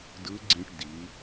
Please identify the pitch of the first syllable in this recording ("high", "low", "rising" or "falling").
rising